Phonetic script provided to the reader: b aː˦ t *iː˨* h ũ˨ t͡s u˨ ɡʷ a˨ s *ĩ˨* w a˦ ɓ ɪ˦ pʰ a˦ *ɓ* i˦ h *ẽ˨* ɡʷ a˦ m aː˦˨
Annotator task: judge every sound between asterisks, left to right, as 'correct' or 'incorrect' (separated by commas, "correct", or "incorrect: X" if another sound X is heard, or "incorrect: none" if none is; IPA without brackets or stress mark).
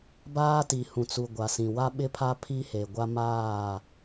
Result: incorrect: i˨, correct, incorrect: pʰ, incorrect: e˨